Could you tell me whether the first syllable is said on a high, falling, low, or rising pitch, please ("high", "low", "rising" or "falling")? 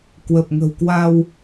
low